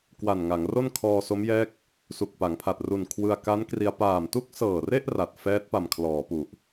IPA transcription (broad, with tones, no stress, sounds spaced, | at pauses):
k w a˨˩ n ŋ a˩˦ ŋ r o˥˩ n kʰ ɔː˧ s o˦˥ m j ɛː˦˥ k̚ | s u˨˩ k̚ p a˩˦ ŋ pʰ a˨˩ t̚ r u˨˩ n kʰ w ɯ˧ a̯ k a˦˥ n k r i˧ a̯ p aː˨˩ m t u˥˩ k̚ s ɤː˨˩ r e˥˩ ʔ r a˨˩ t̚ f ɛː˦˥ t̚ p a˨˩ m kʰ l ɔː˩˦ p u˨˩ ʔ